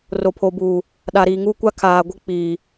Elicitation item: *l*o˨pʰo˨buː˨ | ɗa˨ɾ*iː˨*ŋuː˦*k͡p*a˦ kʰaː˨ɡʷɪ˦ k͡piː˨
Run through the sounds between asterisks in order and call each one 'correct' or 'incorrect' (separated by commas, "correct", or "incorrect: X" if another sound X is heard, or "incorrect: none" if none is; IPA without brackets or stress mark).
incorrect: r, correct, incorrect: kʷ